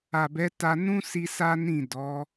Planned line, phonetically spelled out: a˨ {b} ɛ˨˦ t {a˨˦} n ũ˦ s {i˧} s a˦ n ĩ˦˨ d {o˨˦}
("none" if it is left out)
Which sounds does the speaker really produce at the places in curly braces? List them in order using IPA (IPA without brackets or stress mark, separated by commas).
b, a˧, i˧, ɔ˨˦